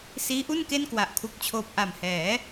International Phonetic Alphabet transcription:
siː˦˥ʔu˥˩nke˥˩n kwa˨˩ʔkʰu˨˩k̚t͡ɕʰoː˨˩p̚ ʔa˨˩mhɛː˩˦

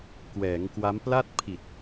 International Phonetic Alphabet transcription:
kwɛː˩˦ŋkwa˦˥mpla˥˩t̚ pʰi˨˩t̚

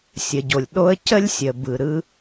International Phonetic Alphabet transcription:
sʲə˩ɟo˩lʲɗo˥ə̯ cə˥lʲsʲə˩ bɯ˩ɾɯ˥

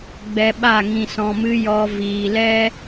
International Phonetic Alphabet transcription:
ɡ͡bɛ˧ɓa˦˨ ŋĩ˨sɔ̃˨mɨ˧ jɔ˧ viː˨lɛ˦

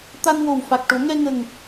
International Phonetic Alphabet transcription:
t̪a˧nwo˨˩wfa˨˩k̚ʈo˨˩˦ ŋɛ˧ŋə˨˩ŋ

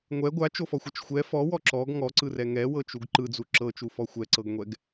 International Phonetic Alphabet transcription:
ŋʷɛ ɡʷat͡ʃofɔxʷɛt͡ʃ xʷɛ fɔwɔ ǁɔɡ ŋɔǀɯrɛ ŋɛwɤt͡ʃuɡ ǃɯd͡zu ǁɤt͡ʃufɔ xʷɛǀɤɡŋʷɛɡ

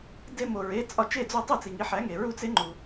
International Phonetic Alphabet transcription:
de˧mo˩ ɹe˩˥t͡sʼɒ˧t͡ʃe˥˩d͡zo˥˩ tˤe˥˩t͡si˩ ŋi˩˥ħæ˩˥ŋe˩ ɹu˧t͡se˩˥ŋ͡ǃu˩

